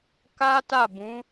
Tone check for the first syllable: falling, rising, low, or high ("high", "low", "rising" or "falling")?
high